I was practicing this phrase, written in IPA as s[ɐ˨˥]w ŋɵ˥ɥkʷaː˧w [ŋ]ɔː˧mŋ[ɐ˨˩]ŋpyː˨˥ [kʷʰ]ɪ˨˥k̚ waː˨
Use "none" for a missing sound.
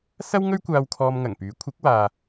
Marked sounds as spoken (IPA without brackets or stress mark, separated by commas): ɐ˥, kʰ, ɐ˨˩, kʷʰ